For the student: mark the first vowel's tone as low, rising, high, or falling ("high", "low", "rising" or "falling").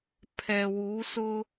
low